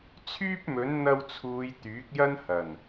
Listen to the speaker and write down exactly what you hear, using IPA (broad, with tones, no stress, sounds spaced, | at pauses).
t͡sʰ yː˥ p̚ m ɵ˨˥ n n̪ ɐ˧ w t͡sʰ uː˨ j t̪ yː˨˥ k̚ j ɐ˥ n h ɐ˨˩ n